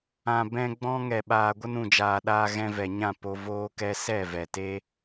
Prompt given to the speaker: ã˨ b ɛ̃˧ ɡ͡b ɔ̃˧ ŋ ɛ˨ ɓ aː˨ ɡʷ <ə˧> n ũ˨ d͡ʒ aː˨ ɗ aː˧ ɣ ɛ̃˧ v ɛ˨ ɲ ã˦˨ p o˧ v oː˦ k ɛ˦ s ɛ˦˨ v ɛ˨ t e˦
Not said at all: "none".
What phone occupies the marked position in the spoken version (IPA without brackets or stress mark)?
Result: ə˧